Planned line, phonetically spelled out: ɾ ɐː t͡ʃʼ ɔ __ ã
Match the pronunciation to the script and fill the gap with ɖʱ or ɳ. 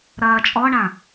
ɳ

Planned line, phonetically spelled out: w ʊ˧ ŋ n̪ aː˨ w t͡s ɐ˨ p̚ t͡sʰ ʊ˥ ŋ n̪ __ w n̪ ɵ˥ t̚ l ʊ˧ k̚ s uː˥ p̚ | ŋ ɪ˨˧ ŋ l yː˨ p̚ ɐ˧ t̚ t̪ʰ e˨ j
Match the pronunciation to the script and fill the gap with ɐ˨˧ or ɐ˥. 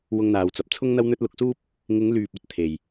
ɐ˥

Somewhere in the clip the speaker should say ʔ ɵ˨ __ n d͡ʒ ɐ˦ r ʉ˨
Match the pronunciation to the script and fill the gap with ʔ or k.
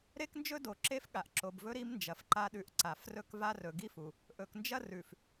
k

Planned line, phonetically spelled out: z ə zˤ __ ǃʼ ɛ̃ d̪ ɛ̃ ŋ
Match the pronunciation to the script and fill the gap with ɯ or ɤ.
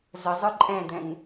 ɯ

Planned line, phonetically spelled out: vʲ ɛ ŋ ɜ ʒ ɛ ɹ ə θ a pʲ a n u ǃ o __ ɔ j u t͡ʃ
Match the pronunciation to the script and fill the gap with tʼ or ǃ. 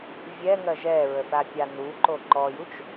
ǃ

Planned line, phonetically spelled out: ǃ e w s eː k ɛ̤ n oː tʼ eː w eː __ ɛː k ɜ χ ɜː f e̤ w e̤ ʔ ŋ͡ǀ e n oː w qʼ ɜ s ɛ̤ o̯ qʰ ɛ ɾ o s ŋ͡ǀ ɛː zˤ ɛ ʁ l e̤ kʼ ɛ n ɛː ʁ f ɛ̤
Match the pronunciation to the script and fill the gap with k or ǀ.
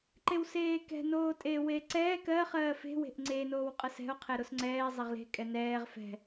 ǀ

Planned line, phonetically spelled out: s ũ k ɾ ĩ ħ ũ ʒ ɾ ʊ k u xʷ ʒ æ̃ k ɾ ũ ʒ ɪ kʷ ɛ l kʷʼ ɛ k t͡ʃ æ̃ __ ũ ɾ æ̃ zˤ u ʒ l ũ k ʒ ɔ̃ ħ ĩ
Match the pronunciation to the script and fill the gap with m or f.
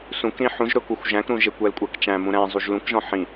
m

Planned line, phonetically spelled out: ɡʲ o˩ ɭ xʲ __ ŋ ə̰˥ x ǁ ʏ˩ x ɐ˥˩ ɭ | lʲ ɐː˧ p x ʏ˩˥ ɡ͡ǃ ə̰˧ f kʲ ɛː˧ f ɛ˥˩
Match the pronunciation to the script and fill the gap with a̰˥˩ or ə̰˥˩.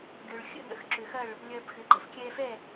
ə̰˥˩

